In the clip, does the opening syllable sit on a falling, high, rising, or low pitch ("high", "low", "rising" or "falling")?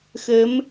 rising